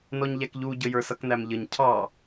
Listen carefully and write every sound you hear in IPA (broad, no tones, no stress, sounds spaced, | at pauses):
n ɔ ɲ ʎ æ k ʎ u ɟ ə j ə˞ s ʌ k n æ m ʎ ə ɲ cʰ ɑ